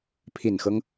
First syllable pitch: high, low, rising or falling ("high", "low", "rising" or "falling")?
low